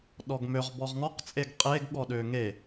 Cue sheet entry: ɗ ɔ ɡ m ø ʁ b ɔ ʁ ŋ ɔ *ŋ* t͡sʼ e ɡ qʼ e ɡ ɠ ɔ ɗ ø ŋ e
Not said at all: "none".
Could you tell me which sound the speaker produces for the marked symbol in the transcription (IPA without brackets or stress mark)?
q